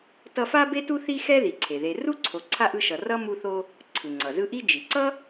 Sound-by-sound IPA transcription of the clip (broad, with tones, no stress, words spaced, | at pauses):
tʌ˦fa˥be˥tu˥ θi˥xɛ˥ði˩ ǀʰe˩ðe˨ru˥ǀʰo˨ ǀʰa˥ʔɯ˦ʃʌ˨ rʌ˥mu˦θo˦ | ǀʰɯ˩ŋ͡ǀʌ˩zɯ˦ʔi˥ d͡ʒi˩ǀʌ˥